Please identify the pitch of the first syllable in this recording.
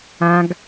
low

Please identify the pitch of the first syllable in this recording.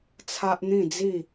high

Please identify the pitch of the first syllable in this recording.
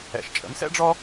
low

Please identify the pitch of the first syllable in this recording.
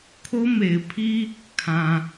high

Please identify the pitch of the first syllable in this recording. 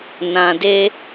low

